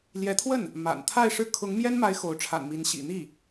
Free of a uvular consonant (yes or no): yes